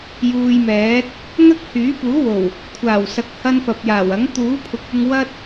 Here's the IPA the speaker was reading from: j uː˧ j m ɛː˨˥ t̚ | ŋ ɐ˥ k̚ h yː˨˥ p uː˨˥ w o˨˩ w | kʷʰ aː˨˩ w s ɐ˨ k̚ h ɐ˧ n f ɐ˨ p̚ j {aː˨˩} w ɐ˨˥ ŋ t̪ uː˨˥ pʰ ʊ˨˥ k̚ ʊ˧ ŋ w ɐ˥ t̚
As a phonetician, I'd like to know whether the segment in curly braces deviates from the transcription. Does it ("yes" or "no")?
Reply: no